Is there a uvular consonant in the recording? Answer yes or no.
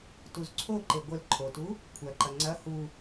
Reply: no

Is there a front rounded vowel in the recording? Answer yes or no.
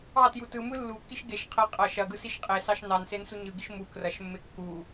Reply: no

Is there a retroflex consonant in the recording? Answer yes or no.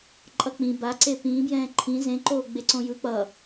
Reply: no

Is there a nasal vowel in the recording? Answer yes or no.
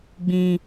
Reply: yes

